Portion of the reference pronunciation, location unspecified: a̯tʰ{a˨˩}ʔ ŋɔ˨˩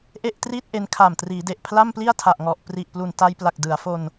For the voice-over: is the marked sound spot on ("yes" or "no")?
yes